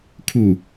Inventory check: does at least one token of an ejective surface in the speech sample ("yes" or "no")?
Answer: no